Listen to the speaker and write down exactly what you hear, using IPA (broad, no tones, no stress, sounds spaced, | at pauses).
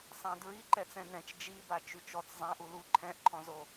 sˤ ã d ɹ i ǃ ɛ t͡s ɛ̃ n ɛ̃ t͡ʃ d͡ʒ i b a t͡ʃ y t͡ʃ ɔ t͡s zˤ ã ʔ u l u ǃʰ ɛ̃ ʔ ǃʰ ɔ̃ z o